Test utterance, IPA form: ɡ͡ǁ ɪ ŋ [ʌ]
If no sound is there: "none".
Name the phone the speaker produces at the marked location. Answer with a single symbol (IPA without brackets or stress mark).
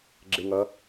ʌ